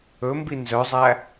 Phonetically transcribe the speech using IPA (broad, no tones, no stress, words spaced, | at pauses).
ɵmbi nzœzˤæ